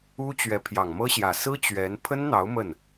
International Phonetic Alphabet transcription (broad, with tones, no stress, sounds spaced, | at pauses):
u˥ t͡ɕ ɥ ɛ˧˥ pʰ j ɑ˨˩ ŋ m ɤ˥ ɕ j ä˨˩ s ɹ̩˥ t͡ɕ ɥ ɛ˧˥ n pʰ ə˥ n n̪ ɑ˧˥ ʊ̯ m ə˥˩ n